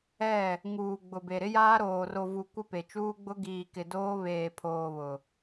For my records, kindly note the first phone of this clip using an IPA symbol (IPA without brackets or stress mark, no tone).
ɛ